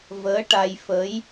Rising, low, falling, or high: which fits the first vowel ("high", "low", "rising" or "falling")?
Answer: rising